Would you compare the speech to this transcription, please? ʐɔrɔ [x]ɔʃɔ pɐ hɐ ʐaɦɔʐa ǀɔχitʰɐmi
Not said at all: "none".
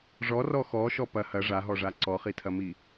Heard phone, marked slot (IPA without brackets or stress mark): x